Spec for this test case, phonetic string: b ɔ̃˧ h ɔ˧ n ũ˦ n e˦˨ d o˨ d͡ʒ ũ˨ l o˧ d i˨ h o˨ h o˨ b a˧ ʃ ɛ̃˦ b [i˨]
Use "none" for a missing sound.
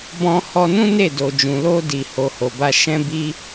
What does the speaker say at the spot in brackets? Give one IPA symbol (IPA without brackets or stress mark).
i˦